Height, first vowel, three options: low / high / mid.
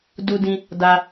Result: high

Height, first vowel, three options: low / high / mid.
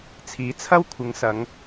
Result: high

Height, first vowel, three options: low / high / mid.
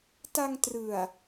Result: low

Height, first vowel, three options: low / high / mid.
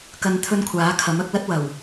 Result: low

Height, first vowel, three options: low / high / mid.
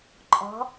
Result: mid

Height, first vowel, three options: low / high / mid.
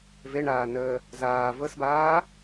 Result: mid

